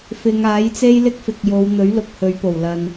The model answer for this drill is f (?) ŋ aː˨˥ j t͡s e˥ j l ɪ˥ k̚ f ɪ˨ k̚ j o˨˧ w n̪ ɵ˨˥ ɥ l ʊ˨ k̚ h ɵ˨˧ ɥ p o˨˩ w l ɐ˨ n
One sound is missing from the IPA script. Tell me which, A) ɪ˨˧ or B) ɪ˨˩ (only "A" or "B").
A